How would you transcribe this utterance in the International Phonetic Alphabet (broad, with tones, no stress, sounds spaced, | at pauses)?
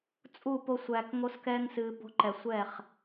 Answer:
t͡sʼ u˦˨ p o˧ sʷ æː˨ k ŋ o˧ s k ɛː˧ ŋ s ɨː˨ b o̤˧ ǃ ɛ˨ sʷ ɛ˦˨ χ